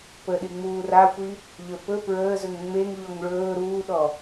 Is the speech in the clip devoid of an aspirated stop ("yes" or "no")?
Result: yes